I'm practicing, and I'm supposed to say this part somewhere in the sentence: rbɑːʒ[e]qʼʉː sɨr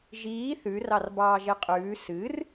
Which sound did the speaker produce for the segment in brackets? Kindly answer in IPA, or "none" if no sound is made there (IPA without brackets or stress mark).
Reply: e